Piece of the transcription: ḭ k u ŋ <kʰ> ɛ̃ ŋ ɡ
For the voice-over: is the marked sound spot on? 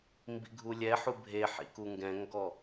no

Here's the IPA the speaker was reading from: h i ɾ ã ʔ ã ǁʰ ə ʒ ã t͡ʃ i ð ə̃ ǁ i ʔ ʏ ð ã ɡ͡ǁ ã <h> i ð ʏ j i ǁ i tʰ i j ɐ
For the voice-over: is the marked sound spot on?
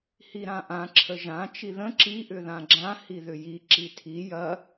yes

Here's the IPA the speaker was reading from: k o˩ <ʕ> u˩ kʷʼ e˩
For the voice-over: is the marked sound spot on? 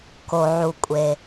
yes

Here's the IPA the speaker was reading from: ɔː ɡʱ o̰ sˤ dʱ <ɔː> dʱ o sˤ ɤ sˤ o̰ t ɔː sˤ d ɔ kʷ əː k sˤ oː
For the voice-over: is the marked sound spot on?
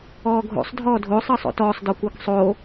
yes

